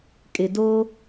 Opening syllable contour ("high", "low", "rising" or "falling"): low